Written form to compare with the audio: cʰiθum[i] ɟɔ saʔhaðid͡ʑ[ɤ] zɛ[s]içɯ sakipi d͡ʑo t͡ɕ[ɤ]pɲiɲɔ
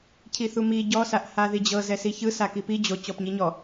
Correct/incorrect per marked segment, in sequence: correct, correct, correct, incorrect: ɔ

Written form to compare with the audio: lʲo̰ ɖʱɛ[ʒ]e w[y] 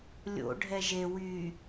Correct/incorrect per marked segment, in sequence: correct, correct

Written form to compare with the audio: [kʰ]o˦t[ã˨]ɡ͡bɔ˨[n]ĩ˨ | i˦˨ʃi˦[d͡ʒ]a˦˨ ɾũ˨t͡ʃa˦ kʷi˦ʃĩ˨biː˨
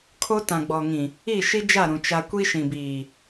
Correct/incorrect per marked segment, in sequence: correct, correct, incorrect: ŋ, correct

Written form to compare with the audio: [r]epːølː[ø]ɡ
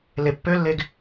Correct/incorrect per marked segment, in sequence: incorrect: l, incorrect: e

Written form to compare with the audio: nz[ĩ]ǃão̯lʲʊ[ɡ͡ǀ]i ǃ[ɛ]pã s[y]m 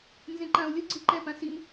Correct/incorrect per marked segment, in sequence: incorrect: ẽ, correct, correct, incorrect: i

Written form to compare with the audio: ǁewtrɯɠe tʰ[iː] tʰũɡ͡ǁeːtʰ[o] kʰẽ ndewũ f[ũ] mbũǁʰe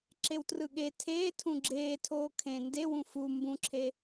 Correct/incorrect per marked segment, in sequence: incorrect: eː, incorrect: oː, incorrect: u

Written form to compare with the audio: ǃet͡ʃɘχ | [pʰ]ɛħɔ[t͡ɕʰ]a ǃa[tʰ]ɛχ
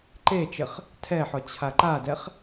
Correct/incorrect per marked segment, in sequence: incorrect: tʰ, correct, incorrect: d

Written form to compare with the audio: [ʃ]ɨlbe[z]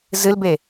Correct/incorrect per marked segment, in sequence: incorrect: z, incorrect: none

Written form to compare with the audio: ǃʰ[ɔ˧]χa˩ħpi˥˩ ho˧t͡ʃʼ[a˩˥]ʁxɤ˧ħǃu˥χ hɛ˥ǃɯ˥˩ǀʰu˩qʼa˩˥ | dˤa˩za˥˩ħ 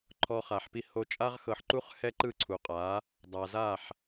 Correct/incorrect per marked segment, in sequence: correct, incorrect: a˥

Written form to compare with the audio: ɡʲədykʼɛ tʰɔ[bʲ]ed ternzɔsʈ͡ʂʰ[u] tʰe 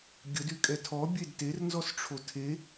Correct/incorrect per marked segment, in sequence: correct, incorrect: o

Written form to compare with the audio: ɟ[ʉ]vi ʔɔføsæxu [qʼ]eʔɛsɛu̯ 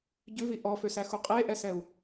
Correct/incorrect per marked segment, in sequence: correct, correct

